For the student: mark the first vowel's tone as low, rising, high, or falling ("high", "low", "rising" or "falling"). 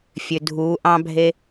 low